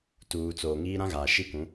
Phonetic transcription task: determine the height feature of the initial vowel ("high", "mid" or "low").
high